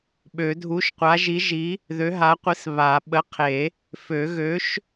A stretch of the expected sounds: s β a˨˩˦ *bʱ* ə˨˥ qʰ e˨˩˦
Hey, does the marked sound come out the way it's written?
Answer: no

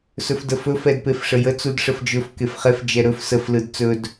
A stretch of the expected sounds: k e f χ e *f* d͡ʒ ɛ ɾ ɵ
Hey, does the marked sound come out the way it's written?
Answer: yes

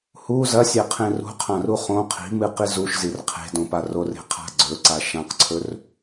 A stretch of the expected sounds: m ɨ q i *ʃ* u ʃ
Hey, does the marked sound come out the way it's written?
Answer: no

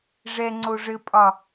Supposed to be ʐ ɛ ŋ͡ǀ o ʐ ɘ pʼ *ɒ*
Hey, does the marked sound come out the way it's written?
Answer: yes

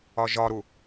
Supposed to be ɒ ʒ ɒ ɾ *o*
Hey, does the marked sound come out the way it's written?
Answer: no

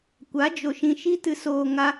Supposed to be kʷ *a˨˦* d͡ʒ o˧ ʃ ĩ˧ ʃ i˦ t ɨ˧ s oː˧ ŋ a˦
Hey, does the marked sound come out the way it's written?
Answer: yes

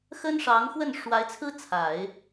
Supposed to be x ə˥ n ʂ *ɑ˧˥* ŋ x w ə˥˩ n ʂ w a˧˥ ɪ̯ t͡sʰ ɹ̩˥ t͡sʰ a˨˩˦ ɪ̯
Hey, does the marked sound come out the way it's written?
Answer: yes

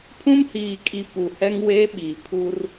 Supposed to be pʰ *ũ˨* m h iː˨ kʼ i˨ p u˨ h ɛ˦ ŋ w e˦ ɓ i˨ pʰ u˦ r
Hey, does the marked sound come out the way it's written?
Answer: no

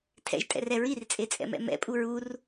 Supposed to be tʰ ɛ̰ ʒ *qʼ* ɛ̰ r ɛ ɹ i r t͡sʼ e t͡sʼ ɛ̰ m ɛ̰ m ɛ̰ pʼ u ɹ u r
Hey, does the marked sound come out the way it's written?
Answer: no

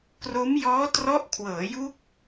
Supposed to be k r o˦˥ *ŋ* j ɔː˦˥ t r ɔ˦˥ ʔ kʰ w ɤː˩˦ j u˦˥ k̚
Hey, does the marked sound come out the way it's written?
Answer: no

